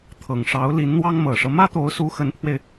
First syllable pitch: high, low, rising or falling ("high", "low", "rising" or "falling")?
low